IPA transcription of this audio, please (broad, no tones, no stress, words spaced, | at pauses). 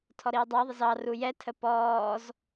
tʰɔɾiːdˤæðˤɪz ɑ rujɛtʰə pɔːz